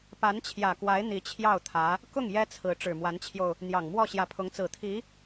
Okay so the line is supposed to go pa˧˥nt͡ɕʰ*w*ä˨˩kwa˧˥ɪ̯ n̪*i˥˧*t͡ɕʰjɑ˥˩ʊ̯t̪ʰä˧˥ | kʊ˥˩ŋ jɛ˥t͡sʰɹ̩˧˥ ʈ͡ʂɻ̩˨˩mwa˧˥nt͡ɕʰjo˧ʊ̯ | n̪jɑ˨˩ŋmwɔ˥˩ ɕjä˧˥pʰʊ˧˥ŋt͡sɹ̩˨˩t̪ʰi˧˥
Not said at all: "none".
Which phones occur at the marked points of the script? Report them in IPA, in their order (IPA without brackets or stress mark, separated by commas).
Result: j, i˧˥